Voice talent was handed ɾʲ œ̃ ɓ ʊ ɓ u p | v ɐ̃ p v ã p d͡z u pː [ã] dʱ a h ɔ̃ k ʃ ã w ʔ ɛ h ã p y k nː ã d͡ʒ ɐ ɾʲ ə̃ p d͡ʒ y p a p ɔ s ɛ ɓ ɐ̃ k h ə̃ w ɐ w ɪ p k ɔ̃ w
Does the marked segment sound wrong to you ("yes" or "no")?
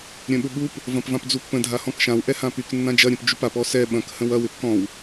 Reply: yes